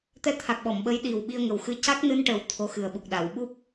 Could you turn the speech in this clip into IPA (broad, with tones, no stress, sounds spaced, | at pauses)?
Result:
t̪ ɛ˧ t̪ʰ a˨˩ k̚ ɓ ɔ˨˩˨ m ɓ ə˧˥ j ɗ i˨˩ w ɓ i˧ ə̯ ŋ ə˨˩ w x ɨ˧ c a˦˥ k̚ n ɨ˧ n ʈ ə˨˩ w t̪ʰ o˧˥ x ɨ˨˩ ə̯ ɓ u˨˩ k̚ ɗ a˨˩˨ w ɓ u˦˥ p̚